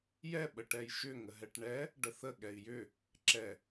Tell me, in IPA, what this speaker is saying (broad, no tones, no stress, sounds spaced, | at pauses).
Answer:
j ɛ ɓ ə ʈ ɛ j ʃ ʏ ŋ ə ɦ ɛ ʈ ɳ ɛ | ɖ ə θ ə ɠ ɛ i̯ j ʏ | ǁ ɛ